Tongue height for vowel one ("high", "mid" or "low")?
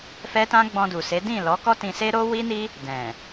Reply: mid